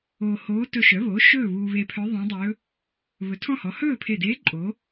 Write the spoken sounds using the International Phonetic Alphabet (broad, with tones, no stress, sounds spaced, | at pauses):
oː˧ h oː˧˥ t ɵ˧ ʃ œ˩˥ β o˩˥ ʃ ɵː˥˨ β uː˧ β e˧ pʰ œ˧˥ ðˤ ẽ˧˥ dˤ ɵː˧˥ | β ɵ˩˥ tʰ ɔ̃˥˨ h ɔ˩˥ h ɵː˥˨ pʰ e˧˩ d eː˧˥ ǃʼ o˩˥